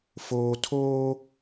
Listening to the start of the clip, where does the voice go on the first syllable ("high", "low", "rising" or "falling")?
low